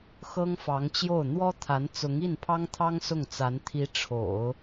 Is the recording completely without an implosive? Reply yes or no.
yes